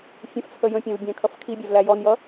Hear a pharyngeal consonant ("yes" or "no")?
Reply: no